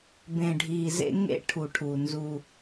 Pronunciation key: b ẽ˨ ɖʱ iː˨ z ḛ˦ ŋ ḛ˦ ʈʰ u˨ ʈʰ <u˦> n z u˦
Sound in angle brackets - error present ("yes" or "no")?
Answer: yes